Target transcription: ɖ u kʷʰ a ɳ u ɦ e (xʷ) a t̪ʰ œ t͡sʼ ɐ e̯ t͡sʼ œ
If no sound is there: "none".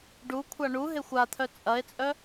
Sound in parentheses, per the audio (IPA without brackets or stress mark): xʷ